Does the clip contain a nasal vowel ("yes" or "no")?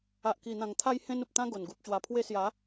yes